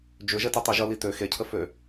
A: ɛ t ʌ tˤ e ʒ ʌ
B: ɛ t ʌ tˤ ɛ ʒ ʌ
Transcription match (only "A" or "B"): A